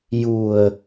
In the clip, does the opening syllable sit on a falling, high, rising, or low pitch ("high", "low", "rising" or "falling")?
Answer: low